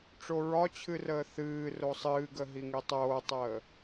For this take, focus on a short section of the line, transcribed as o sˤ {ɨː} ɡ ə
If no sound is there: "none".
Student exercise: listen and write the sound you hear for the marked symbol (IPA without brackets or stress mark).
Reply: ɨː